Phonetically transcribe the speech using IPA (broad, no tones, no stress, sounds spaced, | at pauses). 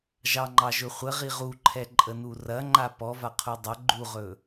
ʒ ɑ ŋ͡ǃ ɑ ʒ ɵ χʷ ə ʁ i ʁ u ǃʰ ɛ ǃʼ ə n u r ɐ ŋ͡ǃ a p ɔ v a qʰ u dˤ ɐ ɡ͡ǃ u ʁ ɵ